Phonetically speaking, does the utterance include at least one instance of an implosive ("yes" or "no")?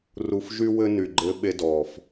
yes